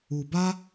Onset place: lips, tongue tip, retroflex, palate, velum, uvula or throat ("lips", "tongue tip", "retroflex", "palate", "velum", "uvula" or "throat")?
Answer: lips